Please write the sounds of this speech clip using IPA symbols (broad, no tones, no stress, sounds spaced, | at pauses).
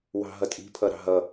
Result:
w ɑ̤ ɦ ʌ tʼ i̤ pʰ ʌ ɾ ɑ̤ ɦ ʌ